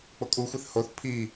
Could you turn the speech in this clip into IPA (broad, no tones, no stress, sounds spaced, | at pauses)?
k͡p o kʼ u xʷ e θ h o θ pʰ i